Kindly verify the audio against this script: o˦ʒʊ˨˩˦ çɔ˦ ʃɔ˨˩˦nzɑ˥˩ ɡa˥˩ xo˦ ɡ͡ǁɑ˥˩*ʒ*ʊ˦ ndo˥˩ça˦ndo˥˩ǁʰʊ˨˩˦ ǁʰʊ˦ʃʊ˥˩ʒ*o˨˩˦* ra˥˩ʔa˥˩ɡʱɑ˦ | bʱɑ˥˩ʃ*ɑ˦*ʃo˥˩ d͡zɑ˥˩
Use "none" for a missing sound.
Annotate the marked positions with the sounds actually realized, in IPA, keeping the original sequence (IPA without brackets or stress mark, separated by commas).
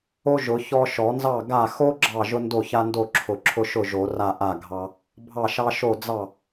ʒ, o˨˩˦, ɑ˦